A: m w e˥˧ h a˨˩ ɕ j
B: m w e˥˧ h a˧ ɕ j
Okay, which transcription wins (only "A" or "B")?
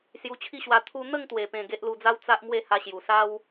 B